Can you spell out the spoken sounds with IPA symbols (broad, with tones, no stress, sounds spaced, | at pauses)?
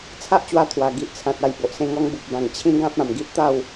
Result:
t͡sʰ a˦ ʔ t͡ɕ w a˧ t̪ʰ w a˨˩ ɡ i˨ ʔ t͡sʰ ã˨ t̚ a˨˩ j b o˨ ʔ s ẽ˧ ŋ ɔ˧ ŋ b u˨ p̚ b ã˨˩ ŋ t͡ɕʰ ĩ˦ ɡ ã˦ p̚ ã˨˩ m ɡ i˦ ʔ t̪ a˥˧ w